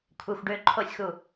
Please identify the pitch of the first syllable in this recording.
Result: low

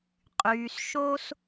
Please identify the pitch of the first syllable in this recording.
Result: low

